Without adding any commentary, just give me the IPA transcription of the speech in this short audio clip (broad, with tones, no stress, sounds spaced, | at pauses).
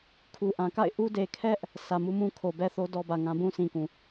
kʰ u˨ ʔ ã˨ k a̰˦˨ ɪ̯ ʔ u˦ d e˨ kʰ ɛ˦ ʔ | s ä˨ m u˦ m ũ˦ kʰ o˨ b ɛ˦ θ o˦ d ɔ˦ b ä˨ ŋ ã˦ b ũ˦ s ĩ˨ k ũ˨